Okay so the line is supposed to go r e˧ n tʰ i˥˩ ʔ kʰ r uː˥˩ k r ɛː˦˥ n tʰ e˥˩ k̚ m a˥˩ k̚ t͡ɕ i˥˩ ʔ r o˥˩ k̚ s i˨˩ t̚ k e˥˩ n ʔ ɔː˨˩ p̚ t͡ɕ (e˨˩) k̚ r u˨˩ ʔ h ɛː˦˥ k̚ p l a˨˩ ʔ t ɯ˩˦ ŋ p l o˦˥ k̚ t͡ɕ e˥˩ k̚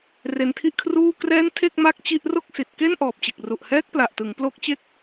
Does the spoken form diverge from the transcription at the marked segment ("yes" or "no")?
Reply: no